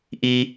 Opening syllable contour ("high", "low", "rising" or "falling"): high